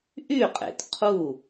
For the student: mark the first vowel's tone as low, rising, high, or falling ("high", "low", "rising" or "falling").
falling